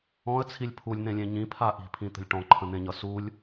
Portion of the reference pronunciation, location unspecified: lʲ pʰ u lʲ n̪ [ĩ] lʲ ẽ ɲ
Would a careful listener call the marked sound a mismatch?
yes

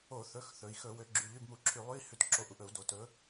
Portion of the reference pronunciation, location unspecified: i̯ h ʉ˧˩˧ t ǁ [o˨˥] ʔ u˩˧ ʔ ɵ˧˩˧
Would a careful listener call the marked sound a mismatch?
no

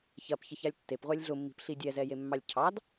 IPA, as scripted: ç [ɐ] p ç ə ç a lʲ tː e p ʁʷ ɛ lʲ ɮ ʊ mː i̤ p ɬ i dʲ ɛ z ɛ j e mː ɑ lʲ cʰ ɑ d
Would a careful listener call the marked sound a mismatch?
no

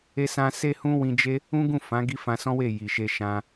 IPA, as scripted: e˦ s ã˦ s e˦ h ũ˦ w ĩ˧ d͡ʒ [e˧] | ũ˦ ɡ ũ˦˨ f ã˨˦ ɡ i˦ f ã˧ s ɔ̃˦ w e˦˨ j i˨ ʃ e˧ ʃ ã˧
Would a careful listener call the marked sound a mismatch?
yes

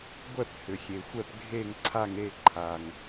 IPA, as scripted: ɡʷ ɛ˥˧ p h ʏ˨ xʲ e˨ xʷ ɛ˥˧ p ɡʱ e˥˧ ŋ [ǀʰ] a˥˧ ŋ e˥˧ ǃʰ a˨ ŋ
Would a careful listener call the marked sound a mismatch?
no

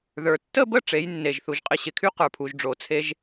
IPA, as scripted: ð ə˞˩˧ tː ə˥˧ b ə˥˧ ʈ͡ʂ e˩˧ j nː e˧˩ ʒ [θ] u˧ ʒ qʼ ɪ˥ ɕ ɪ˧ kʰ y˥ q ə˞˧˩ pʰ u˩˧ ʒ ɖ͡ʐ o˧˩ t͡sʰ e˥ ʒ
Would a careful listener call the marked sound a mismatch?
no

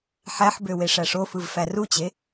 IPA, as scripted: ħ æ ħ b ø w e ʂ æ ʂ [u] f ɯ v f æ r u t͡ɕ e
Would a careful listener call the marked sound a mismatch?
yes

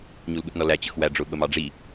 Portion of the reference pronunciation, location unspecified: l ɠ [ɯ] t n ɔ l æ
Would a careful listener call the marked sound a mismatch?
yes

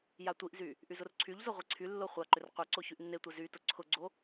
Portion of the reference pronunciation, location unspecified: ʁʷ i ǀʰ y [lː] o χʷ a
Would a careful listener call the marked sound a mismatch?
no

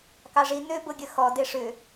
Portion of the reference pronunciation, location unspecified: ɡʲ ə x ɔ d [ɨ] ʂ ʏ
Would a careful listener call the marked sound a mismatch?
yes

